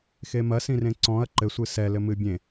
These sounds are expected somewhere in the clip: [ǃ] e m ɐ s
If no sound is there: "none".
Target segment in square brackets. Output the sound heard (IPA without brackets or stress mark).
x